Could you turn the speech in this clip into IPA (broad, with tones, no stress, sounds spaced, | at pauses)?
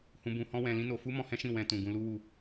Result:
h ũ˧ b ũ˧ h ɔ̃˦ w ɛ̃˧ l ĩ˦ n o˧ f u˦ m ɔ̃˧ h ɛ̃˦ ʃ ĩ˦˨ w ɛ̃˧ t ũ˨ ɡ ũ˧ l u˦ w u˧